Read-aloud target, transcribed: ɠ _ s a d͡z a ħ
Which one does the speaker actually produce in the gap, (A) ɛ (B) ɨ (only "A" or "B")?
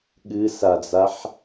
B